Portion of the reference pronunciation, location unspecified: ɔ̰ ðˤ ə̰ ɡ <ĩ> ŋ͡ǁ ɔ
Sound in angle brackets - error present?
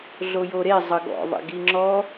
yes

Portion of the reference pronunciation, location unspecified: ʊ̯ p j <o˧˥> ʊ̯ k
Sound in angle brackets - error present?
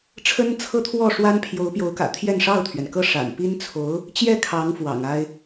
no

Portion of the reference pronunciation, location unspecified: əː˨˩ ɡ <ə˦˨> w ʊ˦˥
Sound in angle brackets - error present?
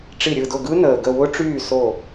no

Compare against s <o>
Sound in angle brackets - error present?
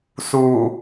yes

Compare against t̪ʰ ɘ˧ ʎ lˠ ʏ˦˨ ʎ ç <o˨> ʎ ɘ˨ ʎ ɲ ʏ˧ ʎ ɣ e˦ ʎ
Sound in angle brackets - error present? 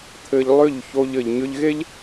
yes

